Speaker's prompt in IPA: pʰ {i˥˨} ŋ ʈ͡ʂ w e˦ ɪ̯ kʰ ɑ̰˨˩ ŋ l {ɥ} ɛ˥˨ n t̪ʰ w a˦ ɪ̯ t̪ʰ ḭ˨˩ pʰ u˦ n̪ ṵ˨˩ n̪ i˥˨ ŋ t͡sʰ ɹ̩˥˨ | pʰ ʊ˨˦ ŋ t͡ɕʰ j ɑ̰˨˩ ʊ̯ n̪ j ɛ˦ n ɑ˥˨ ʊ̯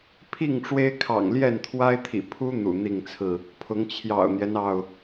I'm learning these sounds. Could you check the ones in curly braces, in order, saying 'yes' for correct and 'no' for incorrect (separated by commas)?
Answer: yes, no